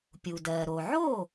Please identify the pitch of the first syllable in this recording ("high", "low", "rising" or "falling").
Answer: low